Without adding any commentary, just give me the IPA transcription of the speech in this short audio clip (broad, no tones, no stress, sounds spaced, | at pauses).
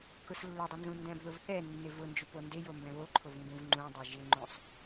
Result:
k ʊ s lː ʊ dˤ ɪ n z ũ n d ɛ̃ b ð ʊ v θ ɛ nː ɪ v ʊ n d͡ʒ u p o n d e j o m b ɛ̃ β o ǃʰ o v ŋ ɡ ũ v ŋ͡ǃ ũ dˤ e ʒ ɪ ŋ͡ǃ ũ sˤ